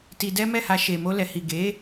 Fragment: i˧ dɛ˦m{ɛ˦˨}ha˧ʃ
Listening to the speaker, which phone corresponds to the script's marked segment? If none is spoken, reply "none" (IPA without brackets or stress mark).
ɛ˦˨